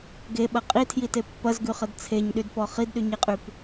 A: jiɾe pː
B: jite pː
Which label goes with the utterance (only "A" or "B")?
B